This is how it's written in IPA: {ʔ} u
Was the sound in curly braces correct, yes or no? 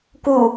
no